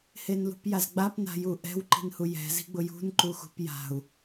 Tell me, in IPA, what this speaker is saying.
h e n l ṳ p j a z ɡ͡b a p n a̤ j u ʔ ɛ̤ w ǃ i̤ n h u j ɛ̤ z i̤ ɡ͡b ʊ j ṳ n ǃ u x ṳ p j a̤ u̯

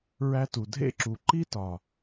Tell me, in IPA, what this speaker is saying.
ɹ æ˧ t u˨ dʱ ḛ˦˨ ǁ u˨ ǃ i˦ t ɒ˨

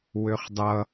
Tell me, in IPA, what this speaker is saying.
w ø χ dˤ ʌ

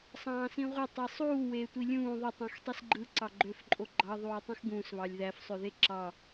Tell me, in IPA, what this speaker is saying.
sˤ ɑ̃ː s ĩ ʁʷ e tˤ i sˤ uː w eː tʷ i lʲ ũː ðˤ ø tˤ ũ x tˤ i s ɡ͡ǃ ɯ ǀ ɑ ɡ͡ǃ ø f ǃʼ o ɡ͡ǃ ɑ ðˤ uː tˤ ũ x ɡ ũː s β ɑ lʲ ð æ f sˤ ø ð e ǁ ɑ

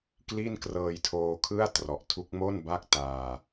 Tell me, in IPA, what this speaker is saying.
k l i˥˩ n k r ɤː˧ j tʰ oː˧ kʰ ɯ˥˩ a̯ t r ɔ˨˩ ʔ tʰ u˦˥ k̚ m o˥˩ n b a˥˩ k̚ t aː˧

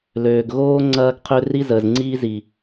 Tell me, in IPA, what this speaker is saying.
l øː˨ ɡ ɣ oː˦ ŋ͡ǀ ɐː˦ ɡ qʰ ø˦ r i˦ z əː˨ z ŋ͡ǀ iː˦ z i˨

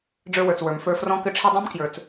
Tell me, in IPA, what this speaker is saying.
ɖ͡ʐ ə˞˧ w ə˞˩ t͡s w ə˞˩ m f ə˞˧ f r ɔ̃˥ k ɘ˥ ʈ͡ʂʰ i˥ dˤ ĩ˥ m k j ə˞˧ t͡s

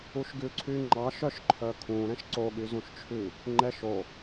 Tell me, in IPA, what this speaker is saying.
u ʃ ɡ ʉ ǀʰ y ŋ͡ǃ ɑ ʃ œ ʃ ǃʰ œ kʰ ũ ɾ ɛ̃ ʃ ǀ o ɠ y z ũ ʃ t͡ʃʰ ʉ | ŋ͡ǃ ɛ ʃ o

